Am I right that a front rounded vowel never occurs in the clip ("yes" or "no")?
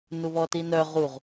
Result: no